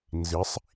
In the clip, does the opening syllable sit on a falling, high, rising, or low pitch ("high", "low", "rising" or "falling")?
rising